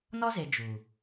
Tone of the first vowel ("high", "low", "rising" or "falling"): high